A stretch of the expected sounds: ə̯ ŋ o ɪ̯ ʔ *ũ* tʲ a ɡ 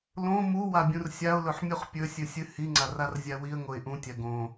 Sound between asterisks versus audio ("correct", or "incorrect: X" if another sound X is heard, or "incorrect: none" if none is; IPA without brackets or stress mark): correct